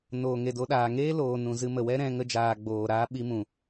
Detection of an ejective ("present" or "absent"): absent